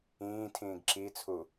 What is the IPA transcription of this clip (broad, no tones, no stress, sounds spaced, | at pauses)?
ĩː tʰ ĩː ɡ ǁ i t͡sʰ u